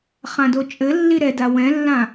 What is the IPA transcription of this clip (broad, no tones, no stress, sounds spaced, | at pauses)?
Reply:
χ ã d o t͡ʃʼ ɘ lː i ɾ ɛ d a w ɛ̃ lː ã